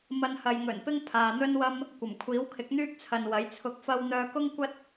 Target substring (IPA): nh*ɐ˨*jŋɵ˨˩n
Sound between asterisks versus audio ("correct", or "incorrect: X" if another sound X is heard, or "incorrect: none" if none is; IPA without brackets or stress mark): correct